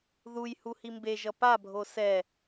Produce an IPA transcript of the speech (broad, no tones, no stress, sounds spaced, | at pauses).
ð u j h u h i m b e ʒ ʌ p a bʱ o s ɛ